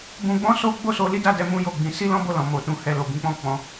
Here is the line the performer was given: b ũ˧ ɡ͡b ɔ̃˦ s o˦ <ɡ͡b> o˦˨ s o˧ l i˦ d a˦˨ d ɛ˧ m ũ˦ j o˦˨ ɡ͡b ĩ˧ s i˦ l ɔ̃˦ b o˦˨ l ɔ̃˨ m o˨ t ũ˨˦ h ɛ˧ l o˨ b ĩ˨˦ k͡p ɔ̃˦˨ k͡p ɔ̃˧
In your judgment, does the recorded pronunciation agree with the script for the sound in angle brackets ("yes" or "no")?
yes